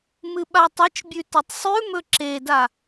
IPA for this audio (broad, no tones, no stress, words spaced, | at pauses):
mɨɓatˤɐt͡ʃbʲʉ tɐtˤsˤʉmɵ ǁeda